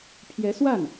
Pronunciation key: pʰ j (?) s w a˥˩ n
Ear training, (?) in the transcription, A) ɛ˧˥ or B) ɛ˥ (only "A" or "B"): A